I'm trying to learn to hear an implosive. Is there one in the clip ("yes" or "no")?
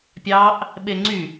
yes